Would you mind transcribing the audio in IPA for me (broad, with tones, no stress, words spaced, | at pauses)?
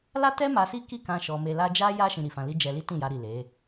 la˦tɛ˦ ma˧si˦ki˦˨kã˧ ʃɔ˧me˧la˦ d͡ʒa˦ja˦ ʃĩ˧ɾi˨fã˧li˦ d͡ʒɛ˧li˦ tĩ˦˨ja˧ɾi˨ le˨˦